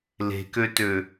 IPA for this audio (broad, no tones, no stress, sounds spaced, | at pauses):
l e̤ k ø t ø